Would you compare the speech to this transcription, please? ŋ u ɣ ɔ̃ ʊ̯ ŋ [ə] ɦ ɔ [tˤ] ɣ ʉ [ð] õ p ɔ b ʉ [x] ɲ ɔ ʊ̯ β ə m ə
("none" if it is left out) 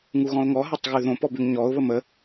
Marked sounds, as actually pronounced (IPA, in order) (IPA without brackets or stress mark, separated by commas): ɔ, tˤ, ð, ŋ